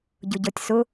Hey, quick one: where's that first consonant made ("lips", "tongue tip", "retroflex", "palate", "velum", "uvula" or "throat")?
palate